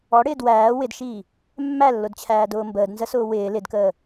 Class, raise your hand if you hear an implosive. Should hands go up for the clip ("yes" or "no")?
no